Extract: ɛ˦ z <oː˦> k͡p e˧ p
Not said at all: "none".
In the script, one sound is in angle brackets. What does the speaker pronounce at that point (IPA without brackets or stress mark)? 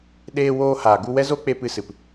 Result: o˦